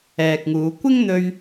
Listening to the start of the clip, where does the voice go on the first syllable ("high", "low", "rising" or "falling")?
low